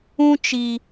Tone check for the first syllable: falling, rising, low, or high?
high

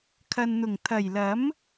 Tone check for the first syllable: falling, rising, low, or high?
low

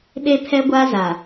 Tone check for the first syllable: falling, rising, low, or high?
high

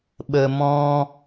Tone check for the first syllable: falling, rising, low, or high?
low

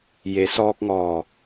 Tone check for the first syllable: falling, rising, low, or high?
low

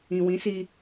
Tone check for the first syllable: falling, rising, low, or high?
low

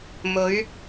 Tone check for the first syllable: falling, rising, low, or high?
rising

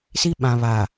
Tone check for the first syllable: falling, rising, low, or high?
high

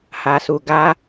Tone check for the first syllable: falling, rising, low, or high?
low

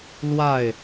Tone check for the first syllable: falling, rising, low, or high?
falling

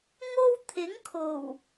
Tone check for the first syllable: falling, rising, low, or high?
high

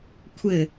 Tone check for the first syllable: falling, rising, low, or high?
falling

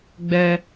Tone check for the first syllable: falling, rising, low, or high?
high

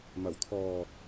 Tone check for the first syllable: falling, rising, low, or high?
low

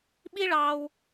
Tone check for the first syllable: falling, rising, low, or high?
high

